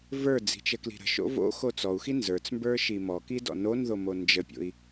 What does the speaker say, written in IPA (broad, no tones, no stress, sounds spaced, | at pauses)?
v ə˞ d͡z i̤ t͡ʃ ə k l i̤ ɾ ə̤ ʃ o̰ v o̰ x o t͡s ɔ u̯ x i n z ə˞ t͡s m b ə˞ ʃ i m ɔ k i d ɔ̰ n o n ð o m o n d͡ʒ ə pʲ o̰ i̯